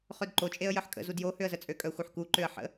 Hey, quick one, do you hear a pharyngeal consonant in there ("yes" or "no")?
yes